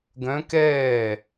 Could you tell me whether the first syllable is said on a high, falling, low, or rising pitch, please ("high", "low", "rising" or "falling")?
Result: rising